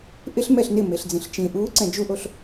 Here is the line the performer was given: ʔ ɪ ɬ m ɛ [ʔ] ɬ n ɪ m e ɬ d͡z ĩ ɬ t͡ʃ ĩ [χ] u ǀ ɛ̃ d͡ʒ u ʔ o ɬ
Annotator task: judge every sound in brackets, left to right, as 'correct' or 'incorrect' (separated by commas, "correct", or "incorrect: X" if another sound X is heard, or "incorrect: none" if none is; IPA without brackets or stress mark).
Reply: incorrect: none, incorrect: ʔ